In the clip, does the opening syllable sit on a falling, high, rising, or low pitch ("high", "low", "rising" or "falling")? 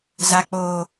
high